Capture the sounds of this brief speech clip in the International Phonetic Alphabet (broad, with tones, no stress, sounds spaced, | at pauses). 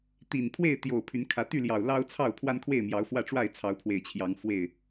t̪ i˨˩ n pʰ w e˥˨ ɪ̯ t̪ j o˨˩ ʊ̯ pʰ y˨˦ n kʰ ä˨˦ t̪ y˥˨ l j ɑ˨˩ ʊ̯ l ɑ˦ ʊ̯ t͡sʰ ɑ˥˨ ʊ̯ pʰ w a˦ n kʰ w e˥˨ ɪ̯ m j ɑ˨˦ ʊ̯ f w ä˥˨ ʈ͡ʂ w a˥˨ ɪ̯ t͡sʰ ɑ˨˦ ʊ̯ pʰ w e˨˩ ɪ̯ t͡ɕʰ j ɑ˨˦ ŋ f w e˥˨ ɪ̯